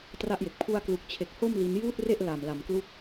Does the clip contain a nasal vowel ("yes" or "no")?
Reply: no